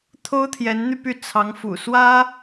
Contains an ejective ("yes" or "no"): no